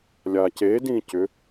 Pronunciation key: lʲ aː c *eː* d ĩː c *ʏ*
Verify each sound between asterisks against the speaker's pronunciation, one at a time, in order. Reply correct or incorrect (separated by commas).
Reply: correct, correct